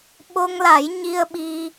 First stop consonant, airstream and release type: implosive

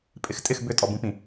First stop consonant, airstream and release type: ejective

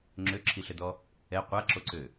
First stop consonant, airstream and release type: click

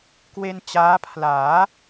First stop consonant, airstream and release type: plain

